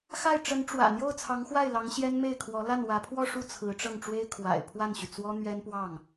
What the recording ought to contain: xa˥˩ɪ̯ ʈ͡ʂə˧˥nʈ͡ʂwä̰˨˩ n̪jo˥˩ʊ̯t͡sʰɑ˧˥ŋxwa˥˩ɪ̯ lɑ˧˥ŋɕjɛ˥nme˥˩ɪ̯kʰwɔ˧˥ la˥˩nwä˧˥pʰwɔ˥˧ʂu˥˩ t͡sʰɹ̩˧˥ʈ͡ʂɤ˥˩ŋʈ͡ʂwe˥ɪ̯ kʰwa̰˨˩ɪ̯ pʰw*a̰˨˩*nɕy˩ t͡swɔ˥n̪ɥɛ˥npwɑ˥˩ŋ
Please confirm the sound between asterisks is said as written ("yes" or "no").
no